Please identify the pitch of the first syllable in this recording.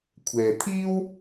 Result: low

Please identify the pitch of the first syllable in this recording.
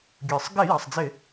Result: low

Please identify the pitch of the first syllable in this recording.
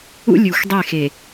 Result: high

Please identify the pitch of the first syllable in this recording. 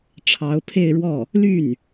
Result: rising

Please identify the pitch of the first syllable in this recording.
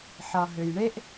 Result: low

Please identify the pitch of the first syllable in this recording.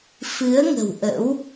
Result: rising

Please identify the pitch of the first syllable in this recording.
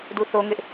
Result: falling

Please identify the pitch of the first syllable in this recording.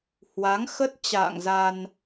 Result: rising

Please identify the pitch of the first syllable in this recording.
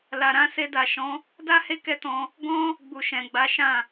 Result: low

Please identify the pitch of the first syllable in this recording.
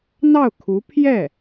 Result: falling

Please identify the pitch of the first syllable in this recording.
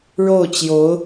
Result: falling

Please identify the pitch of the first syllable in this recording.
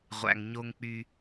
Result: low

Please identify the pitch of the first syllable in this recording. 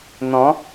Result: rising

